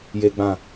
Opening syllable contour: high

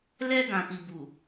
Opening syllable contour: high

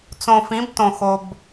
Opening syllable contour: low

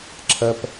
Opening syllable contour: high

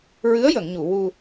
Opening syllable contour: rising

